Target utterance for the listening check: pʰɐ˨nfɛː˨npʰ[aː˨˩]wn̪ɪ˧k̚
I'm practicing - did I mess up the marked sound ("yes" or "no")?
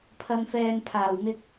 no